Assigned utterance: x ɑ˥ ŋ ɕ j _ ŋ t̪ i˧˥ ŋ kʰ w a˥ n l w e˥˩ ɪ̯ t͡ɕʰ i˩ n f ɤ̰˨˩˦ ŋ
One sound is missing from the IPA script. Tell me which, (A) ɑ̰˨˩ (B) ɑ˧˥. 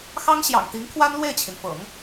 A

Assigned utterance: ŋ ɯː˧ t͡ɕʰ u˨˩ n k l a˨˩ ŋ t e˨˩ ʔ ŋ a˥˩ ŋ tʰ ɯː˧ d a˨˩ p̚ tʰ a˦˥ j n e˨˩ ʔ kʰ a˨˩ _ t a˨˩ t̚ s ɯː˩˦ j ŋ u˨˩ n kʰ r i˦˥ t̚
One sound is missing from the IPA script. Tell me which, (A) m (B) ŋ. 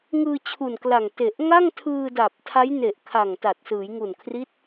B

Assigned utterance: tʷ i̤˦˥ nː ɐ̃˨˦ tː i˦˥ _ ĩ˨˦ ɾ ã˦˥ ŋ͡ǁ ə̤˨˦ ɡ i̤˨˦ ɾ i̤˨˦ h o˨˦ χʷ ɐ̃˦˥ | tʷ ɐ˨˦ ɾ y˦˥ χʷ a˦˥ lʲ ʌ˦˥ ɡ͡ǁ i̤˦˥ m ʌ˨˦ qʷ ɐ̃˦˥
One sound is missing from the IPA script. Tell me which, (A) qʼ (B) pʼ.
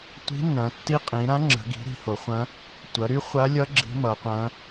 A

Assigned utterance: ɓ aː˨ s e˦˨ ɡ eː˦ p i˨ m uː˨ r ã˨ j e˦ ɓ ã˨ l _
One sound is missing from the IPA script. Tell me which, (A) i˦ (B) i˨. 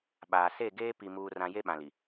B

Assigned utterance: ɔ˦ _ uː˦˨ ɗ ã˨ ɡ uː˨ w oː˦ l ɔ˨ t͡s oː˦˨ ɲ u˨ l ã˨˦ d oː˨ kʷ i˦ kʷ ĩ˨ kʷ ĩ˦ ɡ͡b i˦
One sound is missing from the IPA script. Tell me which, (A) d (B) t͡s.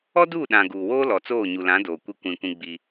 A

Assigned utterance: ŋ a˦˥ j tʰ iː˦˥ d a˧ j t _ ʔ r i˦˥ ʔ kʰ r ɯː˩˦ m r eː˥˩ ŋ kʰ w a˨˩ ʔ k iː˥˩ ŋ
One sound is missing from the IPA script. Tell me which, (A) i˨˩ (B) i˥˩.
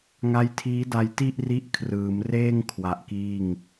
B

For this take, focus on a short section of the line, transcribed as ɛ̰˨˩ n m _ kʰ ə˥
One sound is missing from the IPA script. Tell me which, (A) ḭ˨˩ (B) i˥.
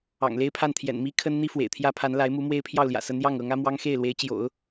B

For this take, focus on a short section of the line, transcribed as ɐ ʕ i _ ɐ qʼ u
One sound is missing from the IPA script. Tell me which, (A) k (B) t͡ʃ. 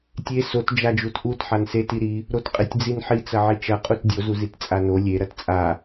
B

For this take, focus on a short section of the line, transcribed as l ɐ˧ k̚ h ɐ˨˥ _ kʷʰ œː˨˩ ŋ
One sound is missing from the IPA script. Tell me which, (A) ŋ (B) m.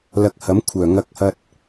B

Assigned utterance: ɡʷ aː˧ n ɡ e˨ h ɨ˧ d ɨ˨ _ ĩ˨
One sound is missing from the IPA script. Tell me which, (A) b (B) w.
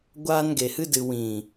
B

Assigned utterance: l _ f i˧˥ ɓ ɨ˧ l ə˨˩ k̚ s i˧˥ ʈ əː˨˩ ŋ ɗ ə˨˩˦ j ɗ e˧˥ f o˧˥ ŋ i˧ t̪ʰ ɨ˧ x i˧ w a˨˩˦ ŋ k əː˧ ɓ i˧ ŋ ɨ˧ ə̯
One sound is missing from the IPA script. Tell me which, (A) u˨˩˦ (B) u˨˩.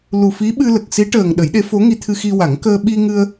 B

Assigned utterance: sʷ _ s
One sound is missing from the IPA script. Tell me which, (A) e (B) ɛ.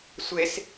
A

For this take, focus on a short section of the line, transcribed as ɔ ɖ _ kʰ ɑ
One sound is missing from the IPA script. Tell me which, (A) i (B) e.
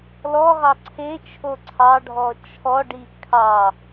A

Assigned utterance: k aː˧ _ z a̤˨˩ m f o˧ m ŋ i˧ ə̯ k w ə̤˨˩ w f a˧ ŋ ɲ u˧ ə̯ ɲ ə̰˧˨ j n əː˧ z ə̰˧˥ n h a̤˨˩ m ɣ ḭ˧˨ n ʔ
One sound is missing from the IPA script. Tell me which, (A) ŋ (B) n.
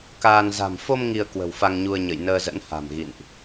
B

